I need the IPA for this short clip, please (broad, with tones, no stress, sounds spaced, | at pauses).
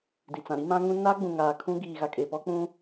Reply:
d i˨ t͡s ã˨ ɾ i˦ m ã˦ ŋ ũ˦ n a˦ ɡ͡b ũ˨ ŋ aː˨ kʰ ũ˦ ɡ iː˨ ɣ a˨ kʼ e˨ p ɔ˦ k͡p ũ˦